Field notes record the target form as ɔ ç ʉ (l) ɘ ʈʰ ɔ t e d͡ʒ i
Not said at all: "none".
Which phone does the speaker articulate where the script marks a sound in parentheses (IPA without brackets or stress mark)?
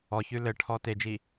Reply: l